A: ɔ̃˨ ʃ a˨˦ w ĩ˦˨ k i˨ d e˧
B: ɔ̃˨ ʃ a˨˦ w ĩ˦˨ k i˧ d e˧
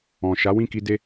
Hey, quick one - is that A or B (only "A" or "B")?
B